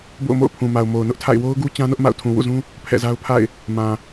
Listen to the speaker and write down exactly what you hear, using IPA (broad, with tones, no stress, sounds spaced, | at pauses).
b o̰˦˨ ʊ̯ m o̰˦˨ ʊ̯ pʰ ũ˨ m a˨ ʊ̯ m o˨ ʊ̯ n ʊ˦ ʔ tʰ a̰˦˨ ɪ̯ w o˦ ʊ̯ ɡ u˦ t͡ɕ ã˦ n ʊ˦ ʔ m a̰˦˨ ʊ̯ tʰ ũ˨ w ṵ˦˨ z ũ˦ | pʰ ɛ̰˦˨ z a˦ ʊ̯ pʰ a̰˦˨ ɪ̯ | m ã˨